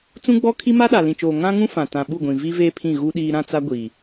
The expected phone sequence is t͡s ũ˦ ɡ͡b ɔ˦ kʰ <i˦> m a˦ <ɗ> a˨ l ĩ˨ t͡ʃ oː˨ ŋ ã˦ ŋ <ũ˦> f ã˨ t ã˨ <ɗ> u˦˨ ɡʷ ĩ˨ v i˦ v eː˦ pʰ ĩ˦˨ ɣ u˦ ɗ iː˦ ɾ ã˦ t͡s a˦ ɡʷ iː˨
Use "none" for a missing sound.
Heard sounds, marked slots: i˦, ɗ, ũ˦, ɓ

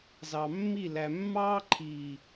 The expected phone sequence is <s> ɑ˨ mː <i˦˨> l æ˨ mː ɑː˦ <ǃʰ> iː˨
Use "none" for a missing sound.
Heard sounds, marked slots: z, i˦˨, ǃʰ

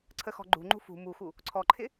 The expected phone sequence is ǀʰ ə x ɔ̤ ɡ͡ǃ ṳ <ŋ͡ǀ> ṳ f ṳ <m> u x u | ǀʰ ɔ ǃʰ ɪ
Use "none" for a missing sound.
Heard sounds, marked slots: ŋ͡ǃ, m

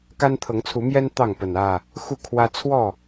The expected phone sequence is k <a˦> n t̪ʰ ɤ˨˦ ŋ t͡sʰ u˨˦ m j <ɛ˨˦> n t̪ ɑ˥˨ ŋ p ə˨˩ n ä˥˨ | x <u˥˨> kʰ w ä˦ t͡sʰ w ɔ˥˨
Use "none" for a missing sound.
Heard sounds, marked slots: a˦, ɛ˦, u˥˨

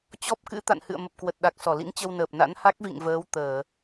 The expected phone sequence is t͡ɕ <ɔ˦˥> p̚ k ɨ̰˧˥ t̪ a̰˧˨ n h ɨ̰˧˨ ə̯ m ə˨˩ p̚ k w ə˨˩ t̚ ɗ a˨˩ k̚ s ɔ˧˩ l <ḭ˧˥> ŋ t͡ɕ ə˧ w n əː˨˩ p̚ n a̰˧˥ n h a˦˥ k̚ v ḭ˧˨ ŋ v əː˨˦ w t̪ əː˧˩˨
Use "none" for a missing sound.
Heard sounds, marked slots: ɔ˦˥, ḭ˧˥

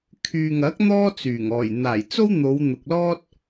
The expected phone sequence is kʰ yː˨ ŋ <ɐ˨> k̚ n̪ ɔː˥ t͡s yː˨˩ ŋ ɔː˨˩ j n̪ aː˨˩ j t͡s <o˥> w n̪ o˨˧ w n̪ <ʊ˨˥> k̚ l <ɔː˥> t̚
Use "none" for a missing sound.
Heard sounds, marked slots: ɐ˨˥, o˥, ʊ˨, ɔː˥

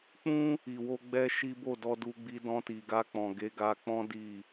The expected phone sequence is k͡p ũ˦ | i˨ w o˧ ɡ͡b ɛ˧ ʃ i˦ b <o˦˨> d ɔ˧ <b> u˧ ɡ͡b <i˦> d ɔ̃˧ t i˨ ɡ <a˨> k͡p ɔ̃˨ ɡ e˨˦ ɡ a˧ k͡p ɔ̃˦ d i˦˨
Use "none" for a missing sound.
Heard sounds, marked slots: o˦˨, d, i˧, a˧

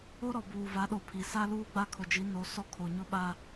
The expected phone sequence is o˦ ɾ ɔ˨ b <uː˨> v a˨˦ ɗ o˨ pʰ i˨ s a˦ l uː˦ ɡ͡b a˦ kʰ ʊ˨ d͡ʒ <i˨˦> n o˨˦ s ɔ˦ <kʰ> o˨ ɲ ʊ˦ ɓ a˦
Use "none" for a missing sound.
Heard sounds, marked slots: uː˨, i˨˦, kʰ

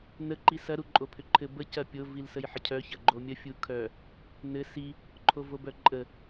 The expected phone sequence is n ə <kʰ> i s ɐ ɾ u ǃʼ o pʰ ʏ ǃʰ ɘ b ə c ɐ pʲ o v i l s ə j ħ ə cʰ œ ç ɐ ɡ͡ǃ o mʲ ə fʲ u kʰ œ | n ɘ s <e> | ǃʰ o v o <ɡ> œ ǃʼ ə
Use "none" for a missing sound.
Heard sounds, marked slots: ǃ, i, b

